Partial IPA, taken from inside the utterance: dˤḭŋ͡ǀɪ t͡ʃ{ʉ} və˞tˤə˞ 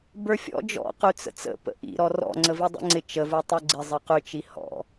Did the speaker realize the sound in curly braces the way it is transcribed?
no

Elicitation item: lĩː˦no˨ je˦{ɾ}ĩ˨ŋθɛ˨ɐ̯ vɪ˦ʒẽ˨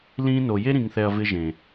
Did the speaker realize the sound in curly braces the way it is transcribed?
yes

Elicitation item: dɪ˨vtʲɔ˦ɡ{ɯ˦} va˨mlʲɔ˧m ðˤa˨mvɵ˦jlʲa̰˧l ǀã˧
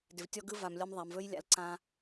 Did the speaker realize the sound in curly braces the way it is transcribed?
yes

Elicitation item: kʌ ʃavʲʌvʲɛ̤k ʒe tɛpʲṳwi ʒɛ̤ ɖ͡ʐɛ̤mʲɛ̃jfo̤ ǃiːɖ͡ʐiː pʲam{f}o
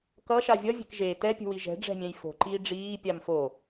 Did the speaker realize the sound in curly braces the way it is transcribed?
yes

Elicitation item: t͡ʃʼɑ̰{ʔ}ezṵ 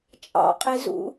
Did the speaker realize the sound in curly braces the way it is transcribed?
no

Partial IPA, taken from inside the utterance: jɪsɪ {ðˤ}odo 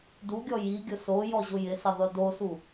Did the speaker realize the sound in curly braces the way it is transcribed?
yes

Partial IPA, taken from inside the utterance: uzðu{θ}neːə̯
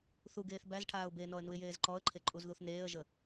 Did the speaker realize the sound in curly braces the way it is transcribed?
yes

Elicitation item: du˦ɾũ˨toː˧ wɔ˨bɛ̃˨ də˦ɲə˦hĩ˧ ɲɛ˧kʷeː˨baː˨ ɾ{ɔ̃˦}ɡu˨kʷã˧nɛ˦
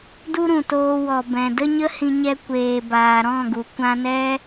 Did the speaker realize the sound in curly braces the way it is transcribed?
no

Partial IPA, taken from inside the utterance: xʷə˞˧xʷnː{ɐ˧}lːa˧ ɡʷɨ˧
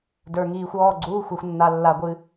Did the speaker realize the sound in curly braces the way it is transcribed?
no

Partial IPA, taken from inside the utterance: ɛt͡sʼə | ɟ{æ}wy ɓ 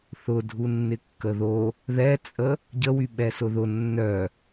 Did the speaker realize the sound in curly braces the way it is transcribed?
no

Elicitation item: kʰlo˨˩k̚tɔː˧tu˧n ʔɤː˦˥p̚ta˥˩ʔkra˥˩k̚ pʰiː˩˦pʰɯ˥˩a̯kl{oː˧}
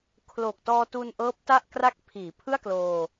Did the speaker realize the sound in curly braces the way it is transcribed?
yes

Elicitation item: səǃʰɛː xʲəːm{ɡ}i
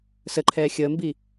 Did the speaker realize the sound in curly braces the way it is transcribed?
no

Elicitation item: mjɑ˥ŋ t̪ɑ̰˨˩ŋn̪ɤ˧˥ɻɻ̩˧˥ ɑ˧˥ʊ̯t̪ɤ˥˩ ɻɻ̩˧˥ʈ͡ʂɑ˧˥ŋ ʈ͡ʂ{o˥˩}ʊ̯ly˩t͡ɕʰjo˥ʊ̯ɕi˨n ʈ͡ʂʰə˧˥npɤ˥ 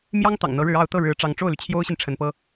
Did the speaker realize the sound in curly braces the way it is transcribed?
yes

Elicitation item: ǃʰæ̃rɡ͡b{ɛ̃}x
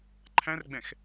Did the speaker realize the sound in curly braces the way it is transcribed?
yes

